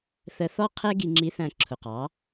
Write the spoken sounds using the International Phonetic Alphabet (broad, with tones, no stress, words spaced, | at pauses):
θə˧θɔ˥ qʰɛ˥ɡi˧ ŋ͡ǁi˧˥θæ̃˧ ǁʰʊ˩qɑ˩˧